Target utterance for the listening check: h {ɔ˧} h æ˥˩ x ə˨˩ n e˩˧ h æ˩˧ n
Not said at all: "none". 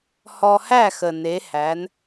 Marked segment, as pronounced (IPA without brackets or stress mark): ɔ˧